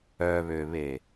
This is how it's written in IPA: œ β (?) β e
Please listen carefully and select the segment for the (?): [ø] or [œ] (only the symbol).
ø